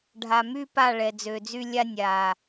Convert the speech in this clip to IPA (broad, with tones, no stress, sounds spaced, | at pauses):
ɖʱ a˨ m y˦ p a˦˨ ɭ ɛ˨ d͡z ø˨ d͡z y˦ lʲ a˦ nʲ a˨